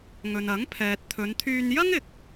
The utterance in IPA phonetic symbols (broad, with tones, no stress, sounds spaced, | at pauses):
ŋ ɵ˨ n ɐ˨˥ ŋ pʰ ɛː˨ t̚ t̪ʰ ɵ˨˧ n t̪ʰ yː˧ n j ɐ˥ ŋ ɪ˨ k̚